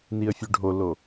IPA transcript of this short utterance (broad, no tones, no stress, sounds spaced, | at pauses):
n i ə̯ fʲ ʉ ɖʱ o l o